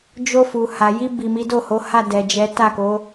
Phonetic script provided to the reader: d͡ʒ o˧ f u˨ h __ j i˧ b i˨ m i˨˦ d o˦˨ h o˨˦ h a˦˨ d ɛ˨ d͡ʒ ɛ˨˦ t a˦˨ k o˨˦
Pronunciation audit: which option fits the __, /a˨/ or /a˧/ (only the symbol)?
a˨